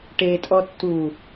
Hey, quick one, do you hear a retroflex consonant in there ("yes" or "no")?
yes